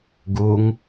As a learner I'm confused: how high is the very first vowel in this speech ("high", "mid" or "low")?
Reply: high